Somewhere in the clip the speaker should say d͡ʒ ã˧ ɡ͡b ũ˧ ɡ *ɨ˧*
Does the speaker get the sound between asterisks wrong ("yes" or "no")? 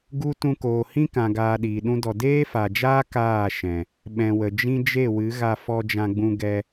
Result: yes